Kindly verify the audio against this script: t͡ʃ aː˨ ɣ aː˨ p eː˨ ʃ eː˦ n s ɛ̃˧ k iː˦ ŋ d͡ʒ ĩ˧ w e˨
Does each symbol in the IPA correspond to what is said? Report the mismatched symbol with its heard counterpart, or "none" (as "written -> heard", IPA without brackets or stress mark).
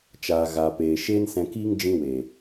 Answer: none